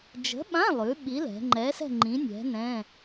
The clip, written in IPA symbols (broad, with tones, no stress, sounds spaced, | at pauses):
d͡ʒ ə̤˨˥ ɓ ã˧˥˧ lˠ ʉ˩˧ ɓ i˨˥ l ɛ̤˩˧ ŋ͡ǃ ɛ˨˥ s ɛ̤˥˧ ŋ͡ǃ ĩ˨˥ nʲ ɛ̤˨˥ n ɛ̃˧˥˧